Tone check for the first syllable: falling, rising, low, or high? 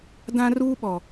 high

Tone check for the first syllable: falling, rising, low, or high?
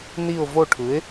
falling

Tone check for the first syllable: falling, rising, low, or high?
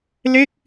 falling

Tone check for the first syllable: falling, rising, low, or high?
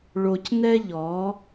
low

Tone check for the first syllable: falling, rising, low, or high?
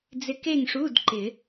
rising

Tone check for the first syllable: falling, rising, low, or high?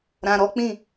low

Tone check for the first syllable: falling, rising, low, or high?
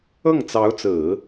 falling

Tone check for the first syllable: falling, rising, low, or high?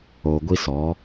low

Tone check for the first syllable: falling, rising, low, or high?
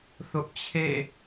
high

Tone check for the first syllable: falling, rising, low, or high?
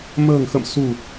low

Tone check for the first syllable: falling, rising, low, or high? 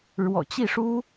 low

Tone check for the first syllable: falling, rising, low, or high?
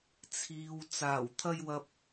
low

